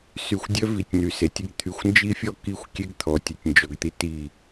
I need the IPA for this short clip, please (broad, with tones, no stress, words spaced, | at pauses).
sy˨xʷdʲœ˦ vi˨tʲny˨se˨tʲə˦ɡ t̪ʰy˨xʷnd͡ʒi˦fʲɔ˦ ki˦xʷkʲe˦ɡt̪ʰɔ˨ tʲə˨tʲnd͡ʒɔ˨ɡt̪i˦ ti˦˨